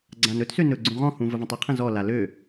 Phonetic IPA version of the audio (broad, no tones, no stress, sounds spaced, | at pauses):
ɡ͡ǀ ã n ɵ t s ø n ɵ ɡ͡ǀ ũ ʁ ɔ̃ h ũ v ə v ə̃ tˤ ɵ qʰ ə̃ z ɔ l a l ø